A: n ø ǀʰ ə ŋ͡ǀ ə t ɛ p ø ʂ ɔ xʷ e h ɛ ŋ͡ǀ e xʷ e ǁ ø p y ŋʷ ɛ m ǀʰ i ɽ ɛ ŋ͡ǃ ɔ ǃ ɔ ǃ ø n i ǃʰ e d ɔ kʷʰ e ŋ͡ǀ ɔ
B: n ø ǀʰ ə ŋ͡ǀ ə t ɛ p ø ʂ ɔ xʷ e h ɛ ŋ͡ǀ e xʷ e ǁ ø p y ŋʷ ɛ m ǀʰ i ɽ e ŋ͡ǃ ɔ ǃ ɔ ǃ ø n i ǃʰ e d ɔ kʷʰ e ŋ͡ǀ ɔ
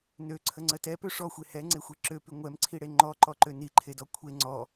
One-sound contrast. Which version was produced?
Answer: B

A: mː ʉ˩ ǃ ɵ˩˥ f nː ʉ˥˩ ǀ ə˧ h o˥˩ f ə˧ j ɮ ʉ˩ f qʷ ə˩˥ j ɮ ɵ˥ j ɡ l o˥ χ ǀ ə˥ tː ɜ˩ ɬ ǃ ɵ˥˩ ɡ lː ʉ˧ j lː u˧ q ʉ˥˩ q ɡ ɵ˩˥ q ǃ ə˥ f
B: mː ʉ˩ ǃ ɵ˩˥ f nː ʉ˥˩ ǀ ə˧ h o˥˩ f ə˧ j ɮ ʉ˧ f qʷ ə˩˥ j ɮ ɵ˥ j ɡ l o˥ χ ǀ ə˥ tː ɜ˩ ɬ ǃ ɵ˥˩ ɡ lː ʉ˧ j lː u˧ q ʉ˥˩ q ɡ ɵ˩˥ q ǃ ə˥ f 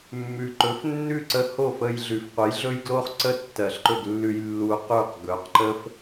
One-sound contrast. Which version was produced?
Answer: A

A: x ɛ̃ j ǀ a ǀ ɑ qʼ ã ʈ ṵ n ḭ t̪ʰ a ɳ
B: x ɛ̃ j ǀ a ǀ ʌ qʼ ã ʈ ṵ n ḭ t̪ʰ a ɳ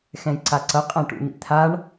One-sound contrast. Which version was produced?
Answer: B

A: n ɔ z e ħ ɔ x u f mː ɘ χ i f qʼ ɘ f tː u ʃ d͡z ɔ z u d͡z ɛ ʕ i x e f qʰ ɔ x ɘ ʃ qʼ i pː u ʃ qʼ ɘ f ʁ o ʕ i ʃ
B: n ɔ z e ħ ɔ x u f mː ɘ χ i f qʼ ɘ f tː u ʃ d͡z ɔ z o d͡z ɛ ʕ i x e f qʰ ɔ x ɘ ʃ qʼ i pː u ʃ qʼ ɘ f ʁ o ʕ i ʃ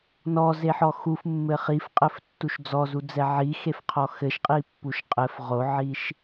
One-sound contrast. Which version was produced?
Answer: A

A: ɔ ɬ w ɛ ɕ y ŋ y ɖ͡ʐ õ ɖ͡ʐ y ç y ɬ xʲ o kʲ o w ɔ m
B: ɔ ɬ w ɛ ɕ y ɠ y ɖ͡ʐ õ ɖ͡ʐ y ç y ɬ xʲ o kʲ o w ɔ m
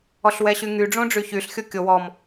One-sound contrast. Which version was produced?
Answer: A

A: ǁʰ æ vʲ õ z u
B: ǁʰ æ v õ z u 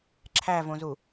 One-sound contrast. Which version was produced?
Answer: B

